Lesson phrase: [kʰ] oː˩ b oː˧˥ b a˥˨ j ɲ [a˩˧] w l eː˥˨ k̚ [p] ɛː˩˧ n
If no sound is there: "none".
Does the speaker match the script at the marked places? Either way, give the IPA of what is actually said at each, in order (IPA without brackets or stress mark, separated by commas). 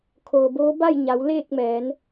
kʰ, a˩˧, m